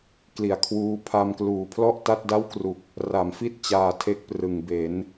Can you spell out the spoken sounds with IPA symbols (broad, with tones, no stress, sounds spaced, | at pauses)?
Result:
k l i˨˩ a̯ kʰ w uː˦˥ pʰ a˧ m k l uː˨˩ pʰ l ɔ˥˩ ʔ t a˥˩ t̚ d a˥˩ w k r u˨˩ k̚ | r a˩˦ m f i˦˥ t̚ t͡ɕ aː˧ tʰ e˦˥ k̚ p r ɯ˩˦ ŋ b e˩˦ n